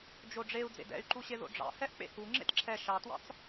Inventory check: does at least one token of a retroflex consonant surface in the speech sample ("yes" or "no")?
yes